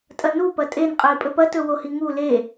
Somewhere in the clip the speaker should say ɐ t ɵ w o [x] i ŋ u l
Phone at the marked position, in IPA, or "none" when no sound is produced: h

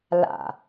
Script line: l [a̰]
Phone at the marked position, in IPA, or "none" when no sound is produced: a̰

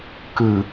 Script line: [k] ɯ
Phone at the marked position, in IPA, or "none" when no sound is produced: k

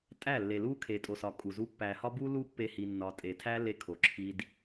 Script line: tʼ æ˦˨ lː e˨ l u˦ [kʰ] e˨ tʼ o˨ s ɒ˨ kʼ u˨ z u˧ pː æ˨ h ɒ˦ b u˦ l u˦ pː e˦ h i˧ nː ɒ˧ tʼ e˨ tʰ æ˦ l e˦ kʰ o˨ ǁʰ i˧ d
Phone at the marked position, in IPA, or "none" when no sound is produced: kʰ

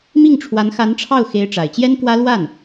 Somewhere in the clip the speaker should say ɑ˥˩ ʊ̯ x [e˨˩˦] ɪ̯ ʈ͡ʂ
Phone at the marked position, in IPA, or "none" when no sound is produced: e˧˥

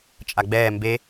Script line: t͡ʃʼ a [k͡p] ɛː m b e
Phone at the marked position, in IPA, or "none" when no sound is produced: ɡ͡b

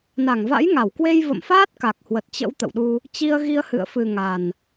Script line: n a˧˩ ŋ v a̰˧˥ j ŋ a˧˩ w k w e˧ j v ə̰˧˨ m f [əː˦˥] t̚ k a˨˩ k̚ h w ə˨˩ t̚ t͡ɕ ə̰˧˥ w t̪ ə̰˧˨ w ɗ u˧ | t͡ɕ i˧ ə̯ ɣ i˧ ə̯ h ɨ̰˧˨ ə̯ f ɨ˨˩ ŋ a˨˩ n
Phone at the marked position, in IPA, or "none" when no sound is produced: aː˦˥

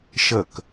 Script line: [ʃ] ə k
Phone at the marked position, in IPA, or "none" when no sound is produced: ʃ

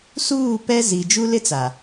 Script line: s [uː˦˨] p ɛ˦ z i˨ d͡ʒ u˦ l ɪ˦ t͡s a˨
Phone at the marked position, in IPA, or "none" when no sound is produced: uː˦˨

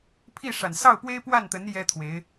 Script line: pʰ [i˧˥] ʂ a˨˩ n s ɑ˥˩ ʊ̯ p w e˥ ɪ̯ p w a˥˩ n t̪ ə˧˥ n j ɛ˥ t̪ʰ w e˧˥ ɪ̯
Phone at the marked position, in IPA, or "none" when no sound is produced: i˥˩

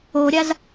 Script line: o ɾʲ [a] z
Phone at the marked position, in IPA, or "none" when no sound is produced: a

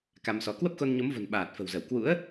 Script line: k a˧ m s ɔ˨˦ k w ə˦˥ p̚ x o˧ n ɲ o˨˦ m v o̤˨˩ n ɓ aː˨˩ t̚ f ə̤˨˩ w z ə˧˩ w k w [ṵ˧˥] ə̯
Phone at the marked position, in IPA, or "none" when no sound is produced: ṵ˧˥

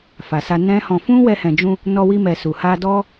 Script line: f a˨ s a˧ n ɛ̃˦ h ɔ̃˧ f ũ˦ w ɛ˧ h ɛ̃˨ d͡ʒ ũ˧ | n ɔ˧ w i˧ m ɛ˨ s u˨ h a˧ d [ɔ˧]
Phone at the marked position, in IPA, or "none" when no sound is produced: ɔ˦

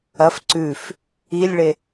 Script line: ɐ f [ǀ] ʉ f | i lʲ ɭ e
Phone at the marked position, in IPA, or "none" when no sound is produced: ǀ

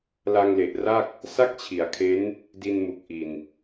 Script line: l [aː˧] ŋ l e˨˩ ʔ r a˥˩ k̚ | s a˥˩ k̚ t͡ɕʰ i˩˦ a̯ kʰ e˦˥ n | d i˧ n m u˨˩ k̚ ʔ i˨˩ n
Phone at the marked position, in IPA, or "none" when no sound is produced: a˧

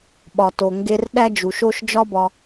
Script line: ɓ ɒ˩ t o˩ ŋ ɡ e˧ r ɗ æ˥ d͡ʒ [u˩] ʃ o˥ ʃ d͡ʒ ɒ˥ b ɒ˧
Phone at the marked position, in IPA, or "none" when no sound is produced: u˩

